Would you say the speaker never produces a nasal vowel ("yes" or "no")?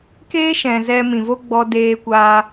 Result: no